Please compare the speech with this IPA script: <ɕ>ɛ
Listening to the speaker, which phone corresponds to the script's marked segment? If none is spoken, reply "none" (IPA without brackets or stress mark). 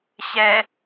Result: ɕ